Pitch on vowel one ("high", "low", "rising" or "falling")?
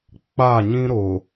falling